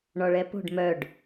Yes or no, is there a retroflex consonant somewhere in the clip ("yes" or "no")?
yes